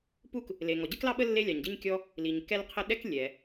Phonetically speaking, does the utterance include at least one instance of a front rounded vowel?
no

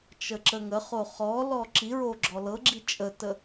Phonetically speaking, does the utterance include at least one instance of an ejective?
yes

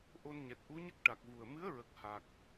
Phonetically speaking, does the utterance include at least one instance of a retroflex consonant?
yes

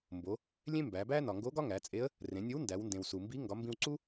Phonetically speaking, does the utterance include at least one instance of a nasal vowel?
yes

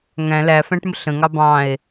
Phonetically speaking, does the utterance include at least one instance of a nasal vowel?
yes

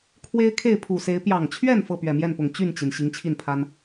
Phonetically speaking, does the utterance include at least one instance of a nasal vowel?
no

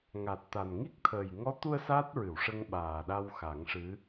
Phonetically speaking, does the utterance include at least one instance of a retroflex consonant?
yes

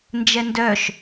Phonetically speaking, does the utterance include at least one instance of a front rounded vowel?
yes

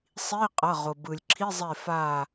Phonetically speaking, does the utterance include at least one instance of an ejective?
yes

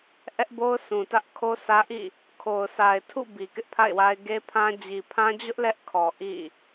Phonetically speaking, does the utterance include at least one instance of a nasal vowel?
yes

